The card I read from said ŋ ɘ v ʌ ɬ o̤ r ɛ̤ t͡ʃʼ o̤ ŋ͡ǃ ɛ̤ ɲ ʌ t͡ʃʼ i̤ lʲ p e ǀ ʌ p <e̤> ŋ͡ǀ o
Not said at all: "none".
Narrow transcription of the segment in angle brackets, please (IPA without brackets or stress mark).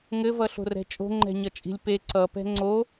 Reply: ɛ̤